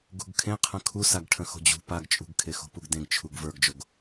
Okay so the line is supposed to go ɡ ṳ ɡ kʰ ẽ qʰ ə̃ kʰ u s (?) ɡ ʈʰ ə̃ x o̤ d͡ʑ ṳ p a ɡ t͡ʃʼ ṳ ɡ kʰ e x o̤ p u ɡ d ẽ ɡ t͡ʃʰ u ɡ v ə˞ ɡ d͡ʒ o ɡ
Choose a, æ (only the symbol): a